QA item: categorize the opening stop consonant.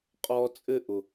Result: ejective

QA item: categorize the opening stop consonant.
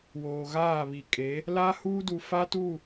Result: ejective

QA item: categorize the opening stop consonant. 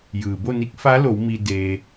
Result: plain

